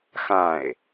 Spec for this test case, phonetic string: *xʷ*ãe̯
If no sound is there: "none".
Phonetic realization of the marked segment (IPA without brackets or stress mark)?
x